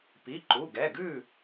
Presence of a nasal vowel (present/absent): absent